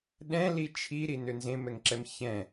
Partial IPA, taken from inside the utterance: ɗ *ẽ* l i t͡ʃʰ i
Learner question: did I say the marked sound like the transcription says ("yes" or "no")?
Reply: no